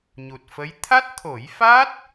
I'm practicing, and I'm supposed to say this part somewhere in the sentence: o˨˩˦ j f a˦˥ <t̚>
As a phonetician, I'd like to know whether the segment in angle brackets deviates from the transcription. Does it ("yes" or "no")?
no